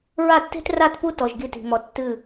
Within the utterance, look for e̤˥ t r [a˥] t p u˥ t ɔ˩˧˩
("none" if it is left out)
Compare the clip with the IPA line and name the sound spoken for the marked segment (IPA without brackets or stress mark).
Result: a˥˧